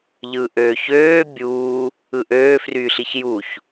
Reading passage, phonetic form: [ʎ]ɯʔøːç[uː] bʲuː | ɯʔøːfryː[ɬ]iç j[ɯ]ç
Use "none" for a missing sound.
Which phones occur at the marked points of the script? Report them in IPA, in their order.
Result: ʎ, øː, ɬ, u

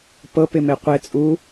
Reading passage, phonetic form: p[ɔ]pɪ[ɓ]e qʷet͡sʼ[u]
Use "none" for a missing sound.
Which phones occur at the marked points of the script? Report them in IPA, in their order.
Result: ɤ, m, u

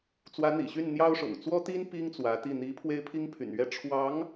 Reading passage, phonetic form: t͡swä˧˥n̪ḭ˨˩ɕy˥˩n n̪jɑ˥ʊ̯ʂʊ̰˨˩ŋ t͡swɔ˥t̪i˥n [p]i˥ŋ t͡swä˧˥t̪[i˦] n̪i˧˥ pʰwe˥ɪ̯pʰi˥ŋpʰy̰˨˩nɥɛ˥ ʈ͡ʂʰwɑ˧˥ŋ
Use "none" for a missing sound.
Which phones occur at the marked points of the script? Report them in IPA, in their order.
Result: p, i˥˩

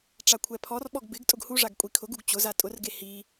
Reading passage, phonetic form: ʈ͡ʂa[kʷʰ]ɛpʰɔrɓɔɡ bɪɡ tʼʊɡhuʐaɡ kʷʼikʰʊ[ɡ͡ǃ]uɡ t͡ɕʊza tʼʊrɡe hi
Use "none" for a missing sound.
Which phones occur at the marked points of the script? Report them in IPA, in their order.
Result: kʷʰ, ɡ

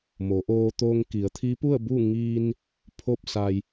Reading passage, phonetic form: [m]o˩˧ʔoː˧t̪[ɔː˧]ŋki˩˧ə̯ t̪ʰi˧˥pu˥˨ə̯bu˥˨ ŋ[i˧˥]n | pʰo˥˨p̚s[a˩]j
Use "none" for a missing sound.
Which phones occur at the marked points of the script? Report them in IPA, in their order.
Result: m, oː˧, i˧, a˧

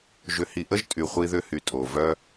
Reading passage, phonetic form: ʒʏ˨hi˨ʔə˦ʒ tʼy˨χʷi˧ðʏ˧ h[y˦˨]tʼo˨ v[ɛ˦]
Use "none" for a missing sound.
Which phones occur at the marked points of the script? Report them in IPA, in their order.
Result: y˨, œ˦

